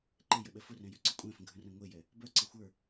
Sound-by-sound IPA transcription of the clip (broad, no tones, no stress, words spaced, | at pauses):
ǃejəɓɛ fʊrɛ̃jyǀʊ kʷʼɛ̃fə̃ɡʱə̃rɛ̃ ŋʷejɛ | bœǀə xʷə˞